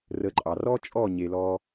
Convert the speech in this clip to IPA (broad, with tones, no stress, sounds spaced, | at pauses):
r ə˧ ǃʼ ɑ˨ r ɔ˦ t͡ʃʼ ɔ˦˨ ɲ e˧ l ɔ˦